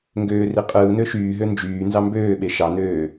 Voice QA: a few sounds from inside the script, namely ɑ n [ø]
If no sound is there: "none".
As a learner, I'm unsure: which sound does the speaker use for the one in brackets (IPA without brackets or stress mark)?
øː